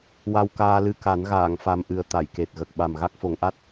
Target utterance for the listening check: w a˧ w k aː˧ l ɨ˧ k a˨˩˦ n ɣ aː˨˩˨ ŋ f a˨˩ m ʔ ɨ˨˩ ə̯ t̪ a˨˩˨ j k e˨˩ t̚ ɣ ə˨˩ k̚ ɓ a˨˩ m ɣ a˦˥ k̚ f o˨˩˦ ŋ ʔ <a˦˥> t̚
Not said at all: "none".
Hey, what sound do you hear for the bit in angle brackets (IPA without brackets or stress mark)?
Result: a˦˥